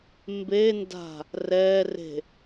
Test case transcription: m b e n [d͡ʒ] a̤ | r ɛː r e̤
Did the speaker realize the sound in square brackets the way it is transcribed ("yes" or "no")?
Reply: no